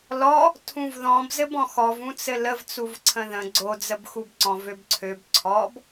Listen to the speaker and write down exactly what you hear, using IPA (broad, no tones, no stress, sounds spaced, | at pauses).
l ɔ | tʰ ũ v ð ɔ̃ b z ɘ b ɔ̃ x ɔ v ũ t͡s ɘ l ə v t͡s u v ǀʰ ə̃ ð ə̃ ɡ͡ǀ o d͡z ə b x u b ǀ ɔ̃ v ø b ǀʰ ø b ǀʰ ɔ b